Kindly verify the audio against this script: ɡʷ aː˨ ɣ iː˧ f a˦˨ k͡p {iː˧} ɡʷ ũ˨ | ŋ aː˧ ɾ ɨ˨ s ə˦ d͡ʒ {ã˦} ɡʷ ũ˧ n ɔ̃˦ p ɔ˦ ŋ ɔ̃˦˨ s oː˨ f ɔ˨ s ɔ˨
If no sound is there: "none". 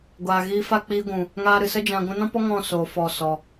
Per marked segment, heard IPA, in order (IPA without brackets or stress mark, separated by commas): iː˧, ã˧